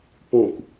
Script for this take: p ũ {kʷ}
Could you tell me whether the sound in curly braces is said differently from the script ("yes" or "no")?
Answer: no